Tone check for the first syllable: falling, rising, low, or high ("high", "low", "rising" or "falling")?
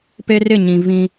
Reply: high